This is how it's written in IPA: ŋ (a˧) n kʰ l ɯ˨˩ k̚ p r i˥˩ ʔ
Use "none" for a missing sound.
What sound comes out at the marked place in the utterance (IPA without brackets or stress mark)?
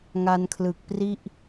a˧